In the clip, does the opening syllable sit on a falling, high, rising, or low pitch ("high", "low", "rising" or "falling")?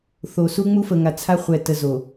low